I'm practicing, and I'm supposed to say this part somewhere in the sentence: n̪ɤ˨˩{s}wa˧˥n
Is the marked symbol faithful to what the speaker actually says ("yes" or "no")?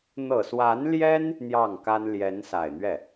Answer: yes